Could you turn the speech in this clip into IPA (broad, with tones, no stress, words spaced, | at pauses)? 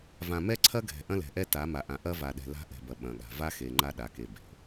vã˨mɛ˦ǀʰɐ˦ ɡʱɛ̤˨ʔɐ̃˦lɛ̤˨ʔɛ˦ ta˨˦ma˨ʔã˨ ʔɐ˦va˨ɗɛ̤˨ la̤˦ʔɛ̤˨bɐ˨ ɓɐ̃˨ɠa̤˨ va˦xe˨ ŋ͡ǃa˦ɗa˨˦ke˨ be̤˨